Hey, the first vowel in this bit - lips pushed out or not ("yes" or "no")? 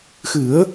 no